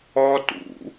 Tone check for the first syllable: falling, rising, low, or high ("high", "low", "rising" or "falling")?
high